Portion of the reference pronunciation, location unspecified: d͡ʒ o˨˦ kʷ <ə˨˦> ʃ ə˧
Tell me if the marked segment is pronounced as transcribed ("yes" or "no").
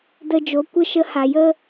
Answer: no